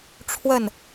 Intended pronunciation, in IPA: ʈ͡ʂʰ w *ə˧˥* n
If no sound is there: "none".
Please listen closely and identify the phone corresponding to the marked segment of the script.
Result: ə˥˩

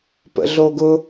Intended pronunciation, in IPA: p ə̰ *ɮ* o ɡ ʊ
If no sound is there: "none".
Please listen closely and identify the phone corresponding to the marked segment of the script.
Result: ɮ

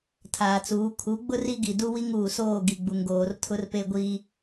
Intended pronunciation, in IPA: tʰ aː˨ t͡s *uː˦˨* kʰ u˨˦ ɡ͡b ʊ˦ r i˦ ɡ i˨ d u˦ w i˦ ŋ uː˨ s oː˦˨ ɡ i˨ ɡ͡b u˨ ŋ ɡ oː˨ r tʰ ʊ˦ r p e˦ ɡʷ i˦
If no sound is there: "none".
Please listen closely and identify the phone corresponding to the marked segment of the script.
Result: uː˨˦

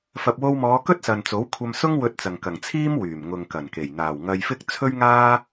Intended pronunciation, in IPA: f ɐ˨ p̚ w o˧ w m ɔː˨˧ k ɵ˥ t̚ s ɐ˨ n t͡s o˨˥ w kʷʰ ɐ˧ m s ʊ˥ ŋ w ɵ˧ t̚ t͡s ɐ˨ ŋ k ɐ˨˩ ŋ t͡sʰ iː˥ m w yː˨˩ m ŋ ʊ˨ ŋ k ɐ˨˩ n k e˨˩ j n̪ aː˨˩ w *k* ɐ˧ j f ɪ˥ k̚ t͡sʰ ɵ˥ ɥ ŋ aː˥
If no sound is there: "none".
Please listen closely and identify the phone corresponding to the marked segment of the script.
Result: ŋ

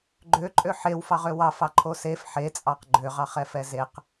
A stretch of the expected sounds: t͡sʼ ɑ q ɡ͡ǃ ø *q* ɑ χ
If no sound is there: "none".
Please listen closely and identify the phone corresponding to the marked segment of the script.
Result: ʁ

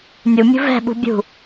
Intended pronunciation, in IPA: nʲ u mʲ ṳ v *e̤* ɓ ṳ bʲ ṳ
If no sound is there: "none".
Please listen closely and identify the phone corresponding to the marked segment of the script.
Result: ɛ̤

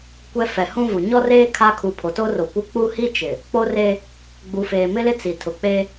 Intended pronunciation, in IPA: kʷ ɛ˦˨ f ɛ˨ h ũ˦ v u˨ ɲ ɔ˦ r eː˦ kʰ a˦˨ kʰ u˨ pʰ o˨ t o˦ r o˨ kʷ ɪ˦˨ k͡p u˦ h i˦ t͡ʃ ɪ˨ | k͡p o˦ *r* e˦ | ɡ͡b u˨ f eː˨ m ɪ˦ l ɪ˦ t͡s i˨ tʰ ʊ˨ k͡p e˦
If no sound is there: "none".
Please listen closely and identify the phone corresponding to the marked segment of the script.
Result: r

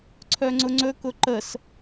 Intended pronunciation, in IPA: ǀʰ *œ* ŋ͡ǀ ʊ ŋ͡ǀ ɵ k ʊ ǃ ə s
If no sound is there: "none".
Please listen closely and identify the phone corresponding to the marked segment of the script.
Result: œ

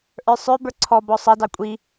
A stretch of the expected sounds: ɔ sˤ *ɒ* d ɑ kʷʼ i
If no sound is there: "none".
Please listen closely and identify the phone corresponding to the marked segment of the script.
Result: ʌ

